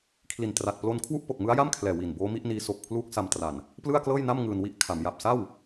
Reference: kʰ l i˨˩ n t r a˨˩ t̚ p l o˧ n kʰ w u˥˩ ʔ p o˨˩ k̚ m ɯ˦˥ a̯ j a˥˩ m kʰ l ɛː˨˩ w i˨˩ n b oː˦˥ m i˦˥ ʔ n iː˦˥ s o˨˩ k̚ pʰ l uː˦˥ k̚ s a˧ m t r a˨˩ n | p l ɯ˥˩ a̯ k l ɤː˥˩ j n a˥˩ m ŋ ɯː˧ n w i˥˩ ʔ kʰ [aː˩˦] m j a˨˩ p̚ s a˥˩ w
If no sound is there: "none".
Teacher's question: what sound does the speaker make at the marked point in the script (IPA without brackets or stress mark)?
a˩˦